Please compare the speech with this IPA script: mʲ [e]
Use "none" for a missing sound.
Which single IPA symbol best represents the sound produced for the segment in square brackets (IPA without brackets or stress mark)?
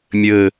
ɘ